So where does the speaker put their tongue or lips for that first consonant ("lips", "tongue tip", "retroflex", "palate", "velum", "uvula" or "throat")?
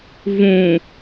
lips